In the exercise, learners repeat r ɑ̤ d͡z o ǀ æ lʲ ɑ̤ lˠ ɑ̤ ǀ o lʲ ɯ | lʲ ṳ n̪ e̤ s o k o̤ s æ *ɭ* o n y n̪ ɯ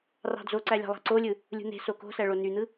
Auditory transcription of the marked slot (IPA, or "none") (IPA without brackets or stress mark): ɭ